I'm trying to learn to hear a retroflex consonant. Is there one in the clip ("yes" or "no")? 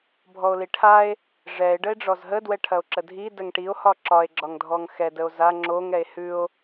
yes